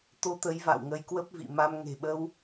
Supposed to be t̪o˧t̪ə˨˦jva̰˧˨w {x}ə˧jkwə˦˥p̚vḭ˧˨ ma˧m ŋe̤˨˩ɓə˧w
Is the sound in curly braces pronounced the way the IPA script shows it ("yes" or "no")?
no